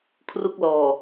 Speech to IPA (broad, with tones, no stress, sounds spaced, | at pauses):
kʰ r u˦˥ k̚ l ɔː˨˩